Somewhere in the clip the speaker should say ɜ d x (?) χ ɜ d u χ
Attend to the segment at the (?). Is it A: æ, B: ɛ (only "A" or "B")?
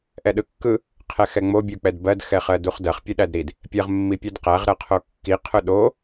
B